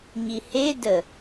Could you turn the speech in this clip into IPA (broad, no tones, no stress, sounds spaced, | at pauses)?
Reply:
ɲ i h e d ə